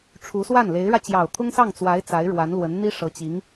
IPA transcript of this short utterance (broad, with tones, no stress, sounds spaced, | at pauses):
ʈ͡ʂʰ u˧˥ s w a˥˩ n l e˧˥ ɪ̯ ɻ ä˧ t͡ɕ j ɑ˨˩ ʊ̯ t̪ʰ ʊ˥ ŋ s ɑ˥˩ ŋ t͡s w a˧˥ ɪ̯ t͡s a˧˥ ɪ̯ ɻ w a˧˥ n l w ə˧˥ n n̪ i˥ ʂ ɤ˧˥ t͡ɕ i˧˥ ŋ